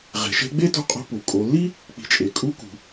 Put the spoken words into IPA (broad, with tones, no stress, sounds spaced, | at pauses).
ʁ e̤˩˧ ʃ e̤˧˥ ɡ͡b e˥ t ṳ˧ qʼ o̤˧ p u˩ kʼ o˩˧ lː i˥ | k͡p i̤˩˧ t͡ʃʼ e˩ kʼ u˧˥ k ṳ˩